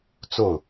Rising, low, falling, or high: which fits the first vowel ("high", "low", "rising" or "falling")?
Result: falling